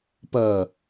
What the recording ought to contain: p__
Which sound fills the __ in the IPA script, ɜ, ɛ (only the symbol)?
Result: ɜ